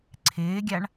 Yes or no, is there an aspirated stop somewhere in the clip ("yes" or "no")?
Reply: yes